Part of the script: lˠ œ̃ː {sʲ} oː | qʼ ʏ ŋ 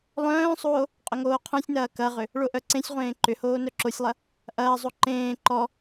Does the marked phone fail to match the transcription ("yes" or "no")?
yes